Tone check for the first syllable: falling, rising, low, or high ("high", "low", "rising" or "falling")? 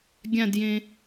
falling